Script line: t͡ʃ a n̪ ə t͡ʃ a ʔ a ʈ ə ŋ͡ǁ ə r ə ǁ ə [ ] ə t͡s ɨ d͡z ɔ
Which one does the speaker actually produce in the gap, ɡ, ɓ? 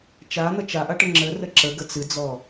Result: ɡ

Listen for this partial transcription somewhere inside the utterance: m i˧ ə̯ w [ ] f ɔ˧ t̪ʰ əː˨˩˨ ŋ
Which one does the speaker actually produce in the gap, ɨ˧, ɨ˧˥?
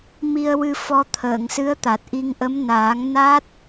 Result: ɨ˧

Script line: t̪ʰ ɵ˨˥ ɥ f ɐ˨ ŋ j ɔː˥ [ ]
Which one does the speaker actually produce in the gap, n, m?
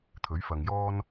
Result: n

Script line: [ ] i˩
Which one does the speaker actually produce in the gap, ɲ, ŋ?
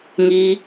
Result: ŋ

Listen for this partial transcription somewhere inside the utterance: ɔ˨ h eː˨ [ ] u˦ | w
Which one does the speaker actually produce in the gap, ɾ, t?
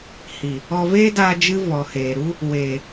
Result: ɾ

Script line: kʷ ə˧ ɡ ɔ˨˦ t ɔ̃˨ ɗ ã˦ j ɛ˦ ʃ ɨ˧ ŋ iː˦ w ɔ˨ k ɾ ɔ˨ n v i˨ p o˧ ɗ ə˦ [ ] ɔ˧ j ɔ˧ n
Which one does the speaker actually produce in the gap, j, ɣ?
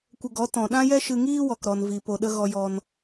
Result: ɣ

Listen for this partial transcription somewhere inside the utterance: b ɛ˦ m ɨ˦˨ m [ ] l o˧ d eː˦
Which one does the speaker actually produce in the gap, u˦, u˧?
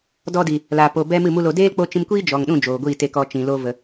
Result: u˦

